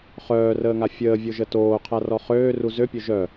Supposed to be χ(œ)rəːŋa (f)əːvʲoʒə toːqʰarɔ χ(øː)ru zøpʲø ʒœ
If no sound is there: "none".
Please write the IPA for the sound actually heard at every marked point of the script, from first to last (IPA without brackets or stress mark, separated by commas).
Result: œː, fʲ, øː